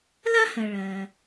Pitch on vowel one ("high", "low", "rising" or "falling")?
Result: high